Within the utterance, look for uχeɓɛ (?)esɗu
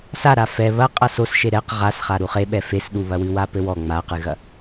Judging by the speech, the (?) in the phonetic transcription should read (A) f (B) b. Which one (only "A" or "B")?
A